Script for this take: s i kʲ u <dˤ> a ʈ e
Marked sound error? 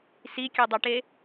no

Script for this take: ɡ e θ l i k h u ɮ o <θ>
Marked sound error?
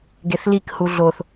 no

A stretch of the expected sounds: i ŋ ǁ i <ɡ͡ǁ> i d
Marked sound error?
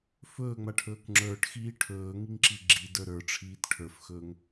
no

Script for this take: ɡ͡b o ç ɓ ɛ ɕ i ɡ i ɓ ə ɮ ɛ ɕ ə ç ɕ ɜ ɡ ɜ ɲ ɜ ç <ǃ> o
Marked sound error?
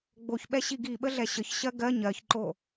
no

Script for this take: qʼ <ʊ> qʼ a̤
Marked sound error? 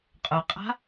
no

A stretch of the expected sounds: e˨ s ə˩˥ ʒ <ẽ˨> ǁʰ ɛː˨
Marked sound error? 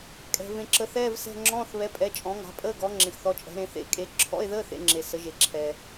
yes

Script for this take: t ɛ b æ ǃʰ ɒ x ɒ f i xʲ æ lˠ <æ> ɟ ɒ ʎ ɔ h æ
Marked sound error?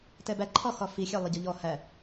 yes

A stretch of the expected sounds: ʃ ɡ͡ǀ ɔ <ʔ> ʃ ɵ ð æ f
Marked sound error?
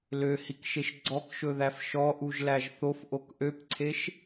yes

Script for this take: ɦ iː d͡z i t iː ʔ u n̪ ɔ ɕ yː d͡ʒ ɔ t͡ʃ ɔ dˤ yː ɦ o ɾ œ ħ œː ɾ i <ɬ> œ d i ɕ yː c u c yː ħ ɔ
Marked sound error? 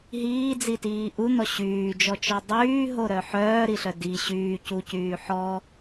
no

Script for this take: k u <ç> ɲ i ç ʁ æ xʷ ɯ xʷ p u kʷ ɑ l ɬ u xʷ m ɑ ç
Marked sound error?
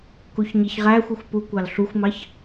no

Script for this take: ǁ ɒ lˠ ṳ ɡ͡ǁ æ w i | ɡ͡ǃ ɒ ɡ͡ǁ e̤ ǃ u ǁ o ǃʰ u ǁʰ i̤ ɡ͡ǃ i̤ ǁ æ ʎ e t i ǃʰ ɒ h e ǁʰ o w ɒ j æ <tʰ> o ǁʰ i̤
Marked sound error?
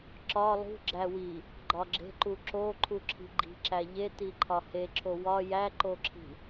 yes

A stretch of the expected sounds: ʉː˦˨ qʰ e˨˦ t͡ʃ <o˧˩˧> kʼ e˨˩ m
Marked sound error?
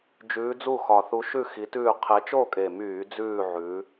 yes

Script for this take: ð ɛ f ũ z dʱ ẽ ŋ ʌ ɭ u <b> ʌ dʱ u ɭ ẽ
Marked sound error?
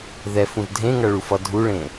yes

